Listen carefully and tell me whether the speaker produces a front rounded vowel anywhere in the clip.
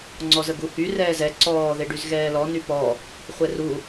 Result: yes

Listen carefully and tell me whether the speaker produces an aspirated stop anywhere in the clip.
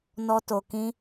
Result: no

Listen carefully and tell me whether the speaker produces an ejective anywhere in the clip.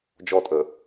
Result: yes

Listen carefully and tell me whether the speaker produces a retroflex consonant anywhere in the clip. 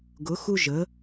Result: no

